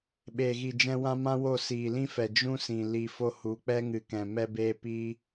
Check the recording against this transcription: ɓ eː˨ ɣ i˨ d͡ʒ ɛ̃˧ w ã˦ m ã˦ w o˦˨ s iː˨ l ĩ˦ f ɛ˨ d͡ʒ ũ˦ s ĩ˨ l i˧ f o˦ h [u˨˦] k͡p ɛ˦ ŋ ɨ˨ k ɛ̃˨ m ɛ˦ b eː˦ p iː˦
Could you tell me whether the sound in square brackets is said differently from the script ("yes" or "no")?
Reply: no